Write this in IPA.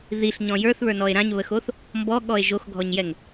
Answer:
ð i ɬ ɲ ɔ̃ j ə˞ θ β ə˞ n ɔ e̯ ɾ ã ɲ β ə x o θ | m b ɔ ɠ ɔ e̯ ʒ o x ɡʱ ɔ ɲ j ɛ ŋ

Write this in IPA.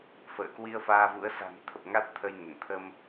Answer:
f ə̰ː˧˨ k w i˧ ə̯ f aː˧ v ṵ˧˥ ə̯ s a̤˨˩ n t̪ʰ ə˨˩ p̚ ŋ a˦˥ t̚ t̪ʰ ə˧ j n ə˧˩ n t̪ʰ ə˧ m

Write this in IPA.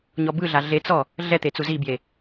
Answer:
ɲ ɔ b ɯ ɮ a ɮ e t͡s ɔ | ɮ ɛ t̪ e t͡s u z i b j e

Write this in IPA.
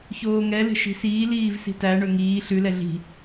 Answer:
ç oː ŋ ɛ l e̤ ʃ i̤ s iː l iː v s i̤ t æ ɳ ɵ ŋ iː ɬ ʉ l ɛ ɮ i̤

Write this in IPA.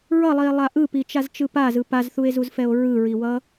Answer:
ɹ ʌ lˠ i e̯ lˠ a ʔ ɯ p i t͡ʃ a z t͡ʃ ɯ p a z ɯ p a z θ u e̯ z u z f ɛ o̯ ɹ ɯ ɹ i w ʌ

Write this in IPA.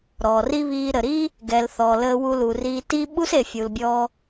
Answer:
ɾ ɔː˨ r i˦ β iː˧ ɾ ə˨ ɾ i˦ | ɡ ɛ˨ l θ ɔ˨ l əː˧ w u˧ l u˨ r iː˧ t iː˧ ɓ u˦ s e˨ fʲ u˨ l bʲ ɔ˧

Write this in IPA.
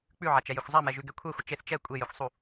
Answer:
k͡p ʉ ʕ a t͡ʃ ɛ j e xʷ zˤ a m ɛ ʒ ʉ ɡ ɛ kʷʰ ɛ xʷ ə t͡ʃ e θ t͡ʃ ɛ kʷʼ e j e xʷ sˤ u

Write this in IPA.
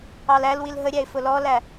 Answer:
ɑ l æ l w i l ɦ ə ɾʲ æ ɪ̯ f ʊ l ɔ l æ

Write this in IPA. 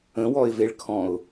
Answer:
ə̃ w ɔ ɪ̯ v e ɭ kʰ ɔ̃ ʊ̯

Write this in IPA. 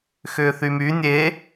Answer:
x ʏː θ y m y nʲ e

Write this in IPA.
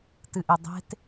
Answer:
t ɨ ʔ e dˤ e̤ t

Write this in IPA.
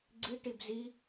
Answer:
ɡ͡ǀ i ʈ i b z i

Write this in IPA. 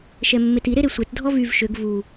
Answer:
ʃ ɛ mː e t i ɾ e ɾ e sʷ e t dʱ ɔ v y v ʃ ø ɡ v u

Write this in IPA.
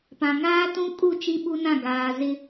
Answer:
p ã˨ ŋ aː˦ t ũ˦ kʼ u˦˨ t͡ʃ i˦ ɓ u˦ n ã˦˨ ɡ aː˨ z ɪ˦

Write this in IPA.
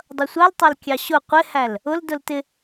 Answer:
dˤ ʌ sʷ ɑ l tˤ ɑ l kʲ ɑ ɕ ʊ qʷ ɪ h æ l | ʊ l d ʊ l t ɪ

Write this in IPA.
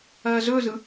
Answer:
ɐː z ɵ z ɯ

